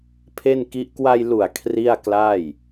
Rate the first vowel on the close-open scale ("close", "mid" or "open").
mid